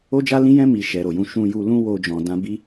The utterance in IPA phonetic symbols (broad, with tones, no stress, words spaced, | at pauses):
o˦d͡ʒa˦lĩ˦jɛ̃˦ mi˧ ʃɛ˨ɾo˨jũ˧ ʃũ˧ju˧ lũ˦wo˧d͡ʒɔ̃˨ dã˧bi˦